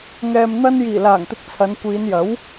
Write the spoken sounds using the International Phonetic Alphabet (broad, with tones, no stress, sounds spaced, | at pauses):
ŋ ɛː˨ m n̪ ɐ˧ n j iː˨˩ l aː˨˩ ŋ t̪ ɪ˨˥ k̚ t͡sʰ ɐ˨˧ n kʷ iː˨˧ n j ɐ˨˥ w